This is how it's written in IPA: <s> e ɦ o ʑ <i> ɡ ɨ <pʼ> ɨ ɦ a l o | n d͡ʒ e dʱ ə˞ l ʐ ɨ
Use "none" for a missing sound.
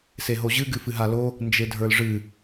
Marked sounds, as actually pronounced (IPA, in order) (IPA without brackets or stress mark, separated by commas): s, ɨ, f